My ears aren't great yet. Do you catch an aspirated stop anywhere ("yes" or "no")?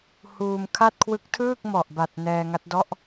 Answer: yes